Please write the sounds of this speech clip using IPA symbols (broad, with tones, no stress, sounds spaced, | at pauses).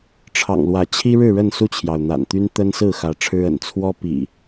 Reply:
ʈ͡ʂʰ ɑ̰˨˩ ŋ l w ä˨˦ t͡ɕʰ i˦ ɻ ɻ̩˥˨ ɻ ə˥˨ n s u˥˨ t͡ɕʰ j ɑ˩ ʊ̯ n̪ a̰˨˩ n t̪ y˦ n t̪ ə˦ n s ɹ̩˥˨ x ä˨˦ ʈ͡ʂʰ ɻ̩˦ ə̰˨˩ n t͡sʰ w ɔ˦ p ḭ˨˩